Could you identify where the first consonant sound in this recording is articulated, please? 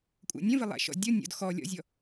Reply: velar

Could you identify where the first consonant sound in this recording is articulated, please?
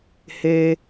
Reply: glottal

